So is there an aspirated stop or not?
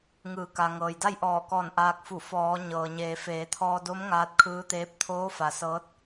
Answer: yes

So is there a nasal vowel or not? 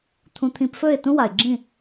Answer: yes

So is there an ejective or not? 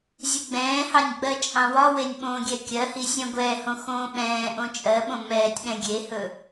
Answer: yes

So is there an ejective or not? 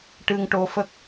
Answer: no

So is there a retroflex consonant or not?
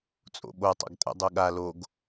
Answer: no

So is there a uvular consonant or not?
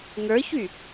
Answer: no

